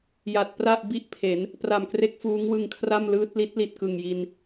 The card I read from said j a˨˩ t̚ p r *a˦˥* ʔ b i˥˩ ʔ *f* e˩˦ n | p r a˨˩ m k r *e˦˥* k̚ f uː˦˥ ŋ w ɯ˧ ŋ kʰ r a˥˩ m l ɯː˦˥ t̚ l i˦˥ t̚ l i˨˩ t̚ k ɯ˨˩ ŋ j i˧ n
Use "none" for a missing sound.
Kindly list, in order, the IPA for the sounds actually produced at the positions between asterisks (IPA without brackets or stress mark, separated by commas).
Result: a˥˩, pʰ, e˦˥